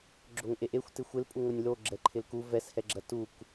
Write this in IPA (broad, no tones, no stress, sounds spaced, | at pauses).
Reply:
ɡ͡ǁ o ŋ ʔ e ʔ e xʷ t ɪ xʷ ɪ l pʼ u ŋ o nʲ l o ɡ͡ǁ ɛ ǃʰ ɪ l k u v ɛ s h ɛ ɡ͡ǁ ɐ t u k